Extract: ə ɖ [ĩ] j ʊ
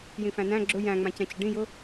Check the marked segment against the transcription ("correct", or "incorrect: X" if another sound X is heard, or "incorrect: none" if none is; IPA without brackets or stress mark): correct